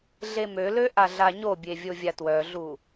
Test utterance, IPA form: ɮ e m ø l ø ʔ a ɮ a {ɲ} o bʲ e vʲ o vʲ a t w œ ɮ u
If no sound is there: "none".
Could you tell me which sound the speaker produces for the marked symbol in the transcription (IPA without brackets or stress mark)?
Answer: ɲ